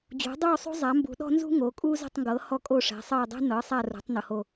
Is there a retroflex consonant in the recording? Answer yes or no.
yes